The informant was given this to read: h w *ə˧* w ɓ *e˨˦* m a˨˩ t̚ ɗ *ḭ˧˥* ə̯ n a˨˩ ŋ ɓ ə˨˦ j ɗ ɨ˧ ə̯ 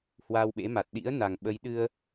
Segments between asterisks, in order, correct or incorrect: incorrect: a˧, incorrect: ḛ˧˥, correct

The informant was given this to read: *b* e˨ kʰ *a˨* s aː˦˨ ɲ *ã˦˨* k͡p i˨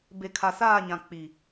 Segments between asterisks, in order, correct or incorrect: correct, correct, incorrect: ã˨

